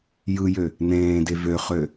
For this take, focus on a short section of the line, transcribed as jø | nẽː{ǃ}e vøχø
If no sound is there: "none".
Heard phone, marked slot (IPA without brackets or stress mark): d